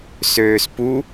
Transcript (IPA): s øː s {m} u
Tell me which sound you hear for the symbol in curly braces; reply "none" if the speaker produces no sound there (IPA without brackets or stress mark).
p